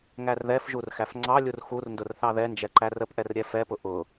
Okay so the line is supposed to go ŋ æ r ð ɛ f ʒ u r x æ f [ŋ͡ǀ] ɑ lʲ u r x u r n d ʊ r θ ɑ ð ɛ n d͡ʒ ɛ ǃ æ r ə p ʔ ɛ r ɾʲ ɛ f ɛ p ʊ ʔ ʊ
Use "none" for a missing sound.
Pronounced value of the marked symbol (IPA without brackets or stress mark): ŋ͡ǀ